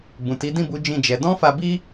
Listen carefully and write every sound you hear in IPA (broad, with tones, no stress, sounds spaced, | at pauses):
b ũ˨ t i˨˦ d ĩ˦˨ b u˨˦ d͡ʒ ĩ˦˨ d͡ʒ ɛ˨˦ d ɔ̃˦ f a˧ b i˦